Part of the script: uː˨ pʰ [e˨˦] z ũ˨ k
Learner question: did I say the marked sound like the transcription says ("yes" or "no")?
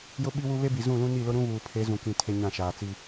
yes